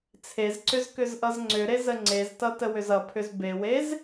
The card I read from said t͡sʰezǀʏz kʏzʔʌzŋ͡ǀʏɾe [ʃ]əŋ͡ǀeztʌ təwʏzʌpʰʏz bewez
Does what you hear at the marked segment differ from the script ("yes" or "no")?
yes